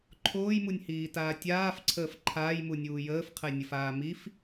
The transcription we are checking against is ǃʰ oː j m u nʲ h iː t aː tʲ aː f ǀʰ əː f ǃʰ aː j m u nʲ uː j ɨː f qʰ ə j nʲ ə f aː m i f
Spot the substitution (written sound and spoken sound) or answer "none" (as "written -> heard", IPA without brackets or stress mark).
ɨː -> əː